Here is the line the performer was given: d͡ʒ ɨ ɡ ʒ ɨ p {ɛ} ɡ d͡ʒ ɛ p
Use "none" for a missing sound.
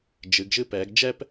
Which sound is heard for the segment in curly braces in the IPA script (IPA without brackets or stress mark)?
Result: ɛ